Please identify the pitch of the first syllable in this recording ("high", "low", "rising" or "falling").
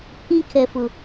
high